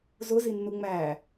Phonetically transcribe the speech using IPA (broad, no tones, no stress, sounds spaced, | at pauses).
z ʊ z i nː u ŋ͡m æ